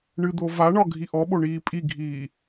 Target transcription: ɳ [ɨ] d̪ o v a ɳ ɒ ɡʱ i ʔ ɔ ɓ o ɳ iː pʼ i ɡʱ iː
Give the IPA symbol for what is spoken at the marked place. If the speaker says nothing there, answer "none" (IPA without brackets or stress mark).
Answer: ɨ